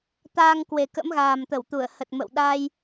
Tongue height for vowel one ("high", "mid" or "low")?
low